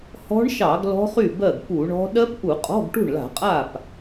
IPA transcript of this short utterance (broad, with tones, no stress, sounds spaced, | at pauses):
h ɔ̤˦˥ ɳ ʃ ɑ˧˩˧ ɡ l ɔ̤˦˥ χ y˥˩ b ɜ˥˩ ɡ p u˧˩˧ ɳ ɔ̤˦˥ ɗ ɜ˦˥ p ʔ u˧˩˧ qʼ ɔ̤˧˥˧ ɡ ʈ ṳ˥˩ ɳ l a̤˧˩˧ qʼ a˥˩ p